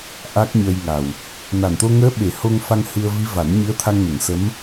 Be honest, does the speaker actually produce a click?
no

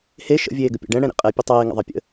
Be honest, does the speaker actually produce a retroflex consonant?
yes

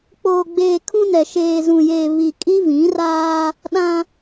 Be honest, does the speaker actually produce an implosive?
yes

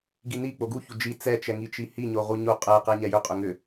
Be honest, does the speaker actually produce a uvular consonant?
yes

